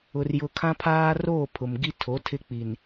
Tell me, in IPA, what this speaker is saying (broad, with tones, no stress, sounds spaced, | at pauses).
ʊ˦ r j ʊ˦ kʰ ã˦ pʰ aː˦ r oː˦˨ pʰ ʊ˨ m ɡ i˦ tʰ o˨˦ tʰ ɪ˦ k͡p i˨ n